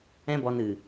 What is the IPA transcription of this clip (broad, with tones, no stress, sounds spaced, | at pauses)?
ɛ̃˦ b ɔ˧ n ɨ˨